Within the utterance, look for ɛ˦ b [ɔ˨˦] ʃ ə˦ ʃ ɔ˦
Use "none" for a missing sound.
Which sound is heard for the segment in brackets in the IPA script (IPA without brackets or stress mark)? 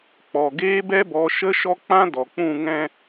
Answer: ɔ˨˦